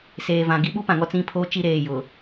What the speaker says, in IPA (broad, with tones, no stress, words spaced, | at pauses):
seː˨vã˨ ɡi˦ɓu˦pã˨ŋɔ˦ t͡sĩ˦˨pʰoː˦ t͡ʃi˦ɾeː˨jʊ˨